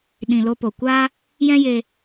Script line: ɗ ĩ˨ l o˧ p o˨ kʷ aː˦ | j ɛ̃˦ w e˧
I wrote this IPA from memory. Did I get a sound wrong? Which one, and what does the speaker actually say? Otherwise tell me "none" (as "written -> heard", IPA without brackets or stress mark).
w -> j